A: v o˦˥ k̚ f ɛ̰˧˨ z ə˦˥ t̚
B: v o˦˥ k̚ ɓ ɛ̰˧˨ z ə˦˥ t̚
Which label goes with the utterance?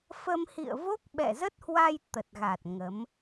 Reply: B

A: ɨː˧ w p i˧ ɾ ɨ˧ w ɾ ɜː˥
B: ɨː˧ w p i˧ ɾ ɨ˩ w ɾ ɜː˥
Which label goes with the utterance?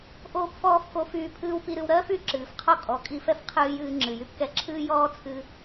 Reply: A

